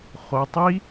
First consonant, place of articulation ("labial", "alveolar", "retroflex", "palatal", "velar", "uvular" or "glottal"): uvular